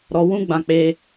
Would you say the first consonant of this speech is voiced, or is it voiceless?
voiced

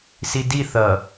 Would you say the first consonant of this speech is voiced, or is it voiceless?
voiceless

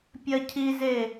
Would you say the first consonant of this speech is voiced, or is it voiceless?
voiceless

